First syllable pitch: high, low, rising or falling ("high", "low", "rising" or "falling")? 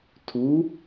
rising